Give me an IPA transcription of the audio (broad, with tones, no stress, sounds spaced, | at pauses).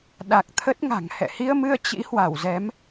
ɗ a˨˩ k̚ t̪ʰ ə˦˥ t̚ ŋ a̤˨˩ ŋ h ɛ̰˧˨ h i˧ ə̯ m ɨ˧ ə̯ t͡ɕ ḭ˧˥ h w a˧˩ w z ɛ˨˦ m